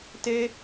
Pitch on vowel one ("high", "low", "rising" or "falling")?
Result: high